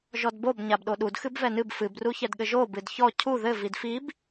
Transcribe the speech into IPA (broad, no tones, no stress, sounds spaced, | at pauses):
ʒ ɔ d b o b ɲ a b ɗ o ɗ u d x ɨ b v ɛ n ɨ b f ɨ b r u ç ɛ d ɠ ɘ ʒ o b ɨ d ç ɔ cʰ u ð ɘ v i d f i b